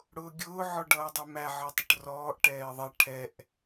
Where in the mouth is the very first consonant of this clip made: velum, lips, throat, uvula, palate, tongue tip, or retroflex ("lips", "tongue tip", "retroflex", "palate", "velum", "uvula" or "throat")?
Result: retroflex